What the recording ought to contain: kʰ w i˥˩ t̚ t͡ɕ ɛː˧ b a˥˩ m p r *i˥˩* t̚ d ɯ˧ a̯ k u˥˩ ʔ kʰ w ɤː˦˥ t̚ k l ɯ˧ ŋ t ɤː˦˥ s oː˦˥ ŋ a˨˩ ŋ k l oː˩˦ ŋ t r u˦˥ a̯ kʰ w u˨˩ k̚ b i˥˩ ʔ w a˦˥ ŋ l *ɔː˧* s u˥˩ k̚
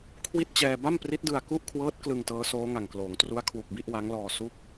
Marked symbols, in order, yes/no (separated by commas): no, yes